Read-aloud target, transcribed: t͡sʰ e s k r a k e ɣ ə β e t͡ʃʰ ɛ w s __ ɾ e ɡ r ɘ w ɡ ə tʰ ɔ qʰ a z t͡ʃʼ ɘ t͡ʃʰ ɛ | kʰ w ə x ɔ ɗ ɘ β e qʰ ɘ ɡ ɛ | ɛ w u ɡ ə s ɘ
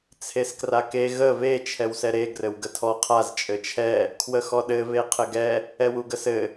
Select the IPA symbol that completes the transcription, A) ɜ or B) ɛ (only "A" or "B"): B